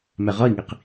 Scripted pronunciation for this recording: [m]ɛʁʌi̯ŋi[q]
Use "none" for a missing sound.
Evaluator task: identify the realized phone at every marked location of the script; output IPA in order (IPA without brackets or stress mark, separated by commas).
m, q